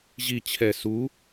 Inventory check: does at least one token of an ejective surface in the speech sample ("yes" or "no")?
no